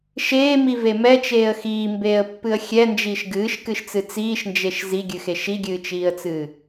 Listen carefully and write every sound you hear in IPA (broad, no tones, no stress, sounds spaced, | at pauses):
ʃ eː m i v e m ɛ t͡ʃ eː ə̯ x iː m b eː ə̯ pː ɨ ə̯ xʲ ɛ n d͡ʒ iː ʃ ɡ ɨː ʃ k ɨ ʃ t͡s ɨ t͡s iː ʃ n d͡ʒ e ʃ z i ɡʲ ɨ x e ʃ i ɡʲ ɨː t͡ʃ iː ə̯ t͡s ɨː